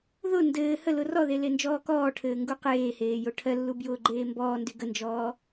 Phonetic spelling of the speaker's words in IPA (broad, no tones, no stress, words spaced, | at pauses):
ðʊ ndɘː həlʊ rɔðe lend͡ʒɔːkɔːʈʰɘː ŋɡuqeːheː joʈʰɜlːu bjʊːɡ͡ǃeːmbɔːndy ɡənd͡ʒɔː